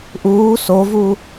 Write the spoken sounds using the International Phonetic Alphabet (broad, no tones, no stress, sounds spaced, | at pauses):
ʔ uː s o v u